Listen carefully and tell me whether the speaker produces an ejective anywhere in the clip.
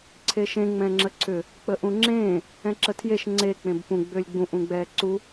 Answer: no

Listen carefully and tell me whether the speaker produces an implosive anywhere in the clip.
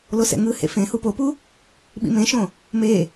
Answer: yes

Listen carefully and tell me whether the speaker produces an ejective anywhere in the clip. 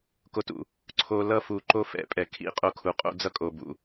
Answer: yes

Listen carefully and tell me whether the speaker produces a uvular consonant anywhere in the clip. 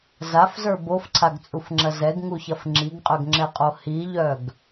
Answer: yes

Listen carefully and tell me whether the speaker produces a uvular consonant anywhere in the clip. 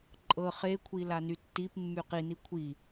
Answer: yes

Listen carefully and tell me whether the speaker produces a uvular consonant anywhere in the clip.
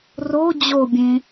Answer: no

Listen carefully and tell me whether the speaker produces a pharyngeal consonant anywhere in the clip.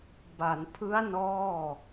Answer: no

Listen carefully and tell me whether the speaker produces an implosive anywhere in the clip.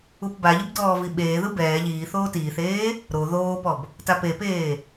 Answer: yes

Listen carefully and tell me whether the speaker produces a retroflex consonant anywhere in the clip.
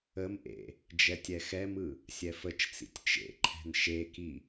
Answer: no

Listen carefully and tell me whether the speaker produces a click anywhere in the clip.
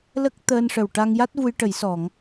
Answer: no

